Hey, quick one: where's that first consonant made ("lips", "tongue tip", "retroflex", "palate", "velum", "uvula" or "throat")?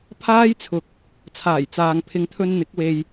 lips